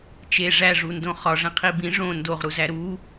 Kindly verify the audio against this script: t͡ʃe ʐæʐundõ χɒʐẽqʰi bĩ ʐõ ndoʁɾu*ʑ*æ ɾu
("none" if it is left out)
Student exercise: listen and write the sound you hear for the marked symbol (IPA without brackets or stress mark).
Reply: z